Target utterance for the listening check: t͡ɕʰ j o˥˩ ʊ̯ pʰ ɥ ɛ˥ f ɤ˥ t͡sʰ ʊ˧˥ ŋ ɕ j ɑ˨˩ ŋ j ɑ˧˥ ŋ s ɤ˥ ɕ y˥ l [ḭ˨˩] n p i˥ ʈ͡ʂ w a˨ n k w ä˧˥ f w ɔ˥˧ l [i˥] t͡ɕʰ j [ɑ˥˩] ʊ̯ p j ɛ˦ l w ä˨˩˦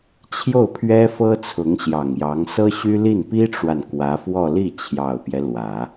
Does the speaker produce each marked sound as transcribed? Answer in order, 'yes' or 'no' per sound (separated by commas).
no, no, no